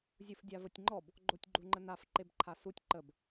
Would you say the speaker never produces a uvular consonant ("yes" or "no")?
yes